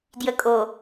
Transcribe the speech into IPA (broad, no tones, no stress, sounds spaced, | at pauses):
d j ə kʼ o